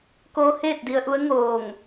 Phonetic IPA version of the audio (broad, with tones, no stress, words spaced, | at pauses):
ko˧heː˥˨t̚ di˧ə̯ʔu˧˥ə̯ ŋoː˧˩ŋ